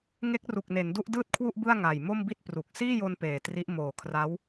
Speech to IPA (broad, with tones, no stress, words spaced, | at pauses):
ŋe˦˥k̚ru˨˩k̚ ne˩˦ndu˥˩ʔdɯː˥˩t̚kʰwu˥˩ʔ bɯ˥˩a̯ŋaː˨˩j mo˥˩mbi˥˩t̚ pru˨˩k̚ siː˥˩jo˧n peː˨˩tri˦˥ʔ moː˨˩kʰra˦˥w